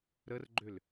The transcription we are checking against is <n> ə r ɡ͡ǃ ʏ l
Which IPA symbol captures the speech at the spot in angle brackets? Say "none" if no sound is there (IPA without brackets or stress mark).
ɾ